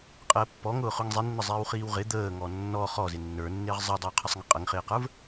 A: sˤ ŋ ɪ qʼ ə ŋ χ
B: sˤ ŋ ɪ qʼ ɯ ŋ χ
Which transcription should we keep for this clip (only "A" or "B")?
A